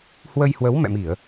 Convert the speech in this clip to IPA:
hwə˧jhwə˨˦wmɛ̰˧˨mi˧˩˨ə̯

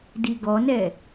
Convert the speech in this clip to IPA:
diɡɔnɛ

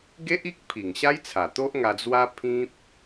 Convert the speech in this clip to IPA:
ɡe˦ʔi˦k̚ pʰi˨˩ŋɕa˦jt͡sʰa˨˩t̪o˦ʔ ŋa˧d͡zwa˦ pʰĩ˦p̚

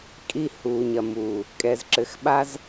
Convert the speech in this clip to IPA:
kʼi˧ huː˨ɲɐ˨muː˨ | kʼɛ˨zǁɘ˨xɓa˧z

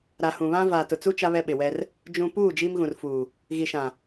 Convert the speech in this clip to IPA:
ɾa˨hũ˨βã˦ vaː˨tʊ˨t͡su˦ t͡ʃa˦βɛ˦ɓɪ˨wɛ˦r | d͡ʒũ˨puː˦˨ d͡ʒiː˦mɣũ˨rfuː˨ | ɣi˨ʃã˨

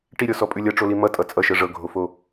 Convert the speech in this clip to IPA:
ʈiɾʲɔsɔ pʼʉlʲʌʈ͡ʂoli mʌ tʼʌt͡sʼʌʃɤ ʐɤɡʱofo

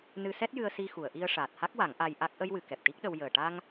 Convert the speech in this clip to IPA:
nɨ˧sɛ˦˥t̚jɨ˧ə̯ si˧xu˨˩˨ə̯ʔi˧ə̯ ʂaː˨˩t̚ha˦˥k̚wa˨˩˦ŋ ʔa˧j ʔa˦˥k̚ ʔə˧jwɨ˨˩˨ kɛ˨˩p̚ʈi˦˥k̚ɗə˧w jəː˨˩ʈa˧ŋ

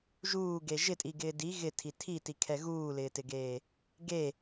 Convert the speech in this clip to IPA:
ʒuːɡe ʒɪtʼiɡɪː di ɣɪtʰi tʰitikʰɛ ɣuːlɪːtɪɡeː | ɡe

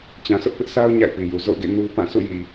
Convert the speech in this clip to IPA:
t͡ɕã˨sʊ˦ʔpɪ˦ʔsa˦ʊ̯ ɲa̰˦˨ɪ̯pi˨ju˨ zo̰˦˨ʊ̯ɡḛ˦˨ nu˦ pã˦˨ sṵ˦˨ji˨

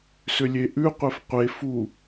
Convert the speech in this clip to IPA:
sʏlʲeʔʉqʷef qʷefu

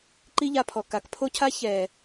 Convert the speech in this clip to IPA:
ǃi˦ʎa˧pʰɔ˨ ka˨kpʰo˦cʰa˦ çɛ˨

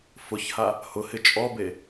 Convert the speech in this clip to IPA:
fʊçha | hʊhɪ t͡ʃʼɔbe

